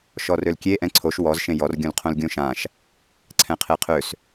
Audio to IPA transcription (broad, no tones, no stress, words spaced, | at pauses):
ʃɔrølkʲe ʔɛ̃ǀʰoʃ wɔz ʃẽjɔr ɡʲõlqʰõlɡʲõʃãʃ | ǀʰɛ̃qʰeqʰøs